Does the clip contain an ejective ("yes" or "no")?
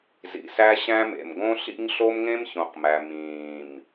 no